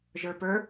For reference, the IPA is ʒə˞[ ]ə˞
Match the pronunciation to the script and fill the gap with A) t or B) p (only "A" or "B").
B